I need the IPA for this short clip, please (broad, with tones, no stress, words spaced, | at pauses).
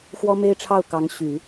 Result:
xwɔ˥me˥ɪ̯ʈ͡ʂʰɑ˥˩ʊ̯ kɑ˧˥ŋɕy˨˩˦